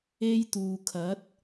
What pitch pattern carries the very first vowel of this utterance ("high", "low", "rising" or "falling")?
high